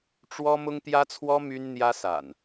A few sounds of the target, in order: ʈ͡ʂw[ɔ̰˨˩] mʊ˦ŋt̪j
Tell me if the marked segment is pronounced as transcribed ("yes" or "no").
no